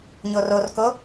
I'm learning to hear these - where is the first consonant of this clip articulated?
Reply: palate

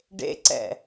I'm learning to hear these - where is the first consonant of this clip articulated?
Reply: retroflex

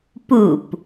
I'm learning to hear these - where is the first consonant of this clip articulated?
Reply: lips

